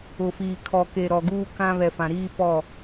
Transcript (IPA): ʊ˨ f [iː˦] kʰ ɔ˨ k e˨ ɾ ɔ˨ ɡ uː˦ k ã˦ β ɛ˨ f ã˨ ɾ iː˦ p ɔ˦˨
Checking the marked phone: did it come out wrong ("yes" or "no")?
yes